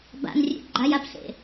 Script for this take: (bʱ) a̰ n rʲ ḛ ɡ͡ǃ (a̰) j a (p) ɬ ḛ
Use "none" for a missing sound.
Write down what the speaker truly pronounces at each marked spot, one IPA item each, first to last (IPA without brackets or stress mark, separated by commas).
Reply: b, a, p